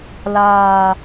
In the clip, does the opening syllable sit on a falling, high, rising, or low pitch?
low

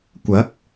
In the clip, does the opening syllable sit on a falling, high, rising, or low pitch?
rising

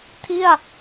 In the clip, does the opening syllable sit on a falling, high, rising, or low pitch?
falling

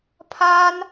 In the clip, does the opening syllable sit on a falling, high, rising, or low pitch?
high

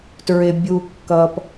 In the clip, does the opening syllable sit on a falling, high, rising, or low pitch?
low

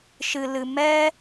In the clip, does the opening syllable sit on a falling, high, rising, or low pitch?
low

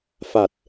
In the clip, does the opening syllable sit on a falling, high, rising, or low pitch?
low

